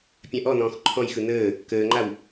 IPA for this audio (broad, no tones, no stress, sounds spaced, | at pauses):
pʲ ã ʔ ɔ n ɔ̃ː x ǃʰ ɔ̃ j x ɯ n əː | k əː ŋ͡ǃ a w